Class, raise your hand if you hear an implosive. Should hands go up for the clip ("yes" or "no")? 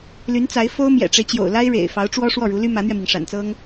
no